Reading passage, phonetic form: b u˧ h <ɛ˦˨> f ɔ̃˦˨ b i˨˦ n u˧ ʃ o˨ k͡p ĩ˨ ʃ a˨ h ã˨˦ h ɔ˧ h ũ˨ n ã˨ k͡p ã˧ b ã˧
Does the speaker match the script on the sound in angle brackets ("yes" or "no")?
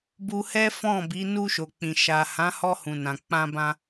no